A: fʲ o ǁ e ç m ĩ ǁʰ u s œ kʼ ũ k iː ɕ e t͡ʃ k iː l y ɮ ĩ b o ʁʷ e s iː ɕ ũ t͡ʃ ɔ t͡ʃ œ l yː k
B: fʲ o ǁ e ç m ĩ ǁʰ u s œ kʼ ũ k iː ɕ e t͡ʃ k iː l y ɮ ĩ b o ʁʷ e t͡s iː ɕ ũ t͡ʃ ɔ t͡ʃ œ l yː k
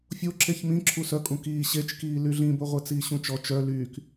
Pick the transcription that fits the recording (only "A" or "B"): B